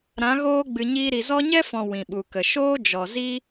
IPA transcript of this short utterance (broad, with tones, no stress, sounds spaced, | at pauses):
ɾ ã˨˦ ɣ oː˦ ɡ͡b ɨ˨ ɲ iː˧ ɾ i˨ z ɔ˦ ɲ ɛ˦ f ɔ̃˨ w ĩ˨ ɓ u˨ k ə˨ ʃ oː˦ d͡ʒ ɔ˨ z i˦